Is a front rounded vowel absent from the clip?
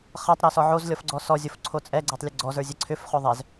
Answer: no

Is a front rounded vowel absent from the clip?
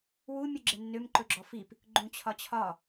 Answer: no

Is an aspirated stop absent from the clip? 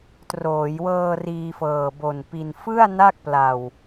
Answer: yes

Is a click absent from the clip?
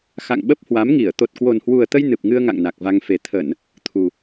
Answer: yes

